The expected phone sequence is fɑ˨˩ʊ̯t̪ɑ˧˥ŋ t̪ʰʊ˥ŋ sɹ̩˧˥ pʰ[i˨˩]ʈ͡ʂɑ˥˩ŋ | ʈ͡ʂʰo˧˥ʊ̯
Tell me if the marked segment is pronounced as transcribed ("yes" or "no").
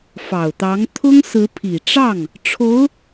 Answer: yes